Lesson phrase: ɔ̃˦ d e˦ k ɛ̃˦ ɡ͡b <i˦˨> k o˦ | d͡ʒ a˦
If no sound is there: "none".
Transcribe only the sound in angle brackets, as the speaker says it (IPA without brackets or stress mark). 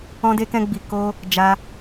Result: i˧